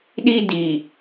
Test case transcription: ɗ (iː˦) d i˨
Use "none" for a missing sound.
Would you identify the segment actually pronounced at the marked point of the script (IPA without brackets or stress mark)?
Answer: i˦